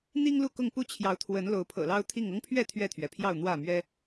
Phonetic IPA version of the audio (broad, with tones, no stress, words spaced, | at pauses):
n̪i˦ŋlu˥˨ kʊ˥˨ŋpu˦t͡ɕʰjɑ˨˦ʊ̯t̪ʰwə˨˦n lo˨˦ʊ̯pʰɤ̰˨˩lɑ˦ʊ̯t̪ʰi˥˨ŋ ɤ˦ŋpʰɥɛ˥˨ t̪ʰɥɛ˥˨t̪ʰɥɛ˩pʰjɑ˥˨ʊ̯ n̪wä˥˨mɥɛ˦